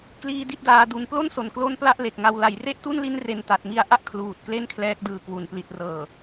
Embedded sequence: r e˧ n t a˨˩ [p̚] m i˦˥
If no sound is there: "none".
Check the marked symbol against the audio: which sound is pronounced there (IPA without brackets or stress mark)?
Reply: t̚